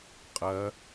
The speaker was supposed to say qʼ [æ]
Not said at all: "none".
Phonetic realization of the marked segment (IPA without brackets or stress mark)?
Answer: ɐ